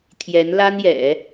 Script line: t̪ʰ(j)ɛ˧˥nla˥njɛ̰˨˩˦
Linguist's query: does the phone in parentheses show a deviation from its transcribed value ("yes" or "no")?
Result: no